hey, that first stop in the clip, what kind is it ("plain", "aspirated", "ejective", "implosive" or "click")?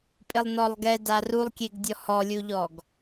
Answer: ejective